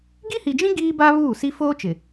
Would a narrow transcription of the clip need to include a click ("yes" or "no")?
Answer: no